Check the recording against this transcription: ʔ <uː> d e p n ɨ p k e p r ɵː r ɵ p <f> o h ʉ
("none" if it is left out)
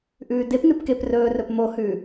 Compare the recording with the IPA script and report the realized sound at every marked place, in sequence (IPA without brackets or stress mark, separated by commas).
ʉː, m